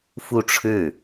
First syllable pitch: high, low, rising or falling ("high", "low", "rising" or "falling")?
falling